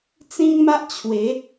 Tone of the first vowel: high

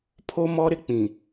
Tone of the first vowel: high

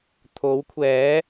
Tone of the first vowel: rising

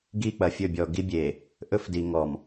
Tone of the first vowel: falling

